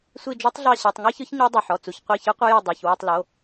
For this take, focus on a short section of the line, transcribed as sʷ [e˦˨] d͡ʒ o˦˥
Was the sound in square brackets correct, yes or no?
no